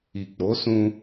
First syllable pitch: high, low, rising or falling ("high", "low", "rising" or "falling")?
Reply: low